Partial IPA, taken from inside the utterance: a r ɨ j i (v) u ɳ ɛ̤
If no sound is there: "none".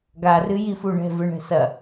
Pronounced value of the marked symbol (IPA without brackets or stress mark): f